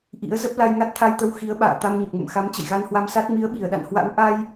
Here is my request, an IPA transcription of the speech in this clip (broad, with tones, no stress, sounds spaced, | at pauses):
ʔ ḭ˧˥ ə̯ z ə˦˥ p̚ l a˧ j ŋ a˦˥ t̚ t̪ʰ a˧ j t̪ ə˧ w x i˨˦ ə̯ ɓ a̰ː˧˨ t̪ a˧ m ɲ ə˨˩ p̚ ŋ ə̰˧˨ m x a˨˦ m t͡ɕ ə̰˧˨ j ɣ a˧ n h w a˧ m s a˦˥ t̚ m i˨˦ ə̯ ɓ i˧˩ ə̯ ɗ a̰˧˨ n h w a̰˧˥ w ʔ a˧ j